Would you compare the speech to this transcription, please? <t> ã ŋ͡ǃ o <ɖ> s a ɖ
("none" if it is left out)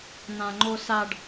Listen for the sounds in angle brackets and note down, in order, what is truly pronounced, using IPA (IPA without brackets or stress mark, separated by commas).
n̪, none